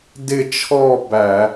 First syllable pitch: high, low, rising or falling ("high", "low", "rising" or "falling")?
falling